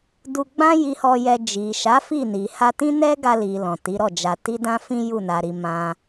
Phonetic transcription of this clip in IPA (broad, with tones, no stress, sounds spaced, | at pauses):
d u˧ ɡ͡b ã˦ j i˧ h ɔ˧ j ɛ˧ d͡ʒ i˨ ʃ a˨˦ f i˦˨ n i˨ h a˧ t ĩ˦ n ɛ˦ ɡ a˧ l i˨ l ɔ̃˨ t i˨˦ ɾ ɔ˦˨ d͡ʒ a˧ t i˦ d ã˦ f ĩ˦ j u˦˨ n a˨ ɾ i˨ m ã˧